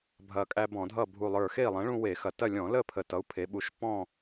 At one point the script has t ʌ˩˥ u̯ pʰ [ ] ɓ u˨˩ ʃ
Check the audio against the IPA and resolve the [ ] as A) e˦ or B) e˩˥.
B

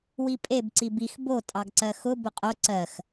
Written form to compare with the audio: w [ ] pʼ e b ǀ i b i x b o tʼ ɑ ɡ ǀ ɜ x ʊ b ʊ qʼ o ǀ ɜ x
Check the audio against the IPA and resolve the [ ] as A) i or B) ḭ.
A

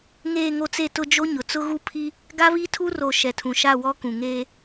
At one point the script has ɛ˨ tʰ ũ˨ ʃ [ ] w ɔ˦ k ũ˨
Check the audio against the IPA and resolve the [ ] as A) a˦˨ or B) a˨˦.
A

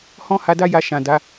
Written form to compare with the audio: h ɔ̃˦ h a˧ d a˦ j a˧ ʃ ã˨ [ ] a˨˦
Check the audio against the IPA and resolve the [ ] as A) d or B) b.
A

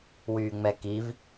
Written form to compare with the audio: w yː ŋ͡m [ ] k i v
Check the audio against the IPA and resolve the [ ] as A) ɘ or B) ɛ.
B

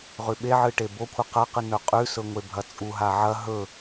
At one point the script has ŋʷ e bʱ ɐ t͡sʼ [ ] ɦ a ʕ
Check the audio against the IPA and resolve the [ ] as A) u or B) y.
A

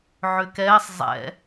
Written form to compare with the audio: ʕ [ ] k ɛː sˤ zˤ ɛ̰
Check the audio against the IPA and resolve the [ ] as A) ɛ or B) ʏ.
B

